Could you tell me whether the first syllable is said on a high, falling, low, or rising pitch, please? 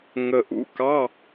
low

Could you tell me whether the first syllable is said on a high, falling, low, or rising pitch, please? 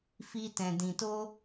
high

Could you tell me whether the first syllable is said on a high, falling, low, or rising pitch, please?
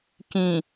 low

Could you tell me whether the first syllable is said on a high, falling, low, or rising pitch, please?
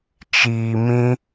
low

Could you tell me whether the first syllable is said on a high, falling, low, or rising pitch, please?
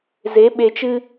rising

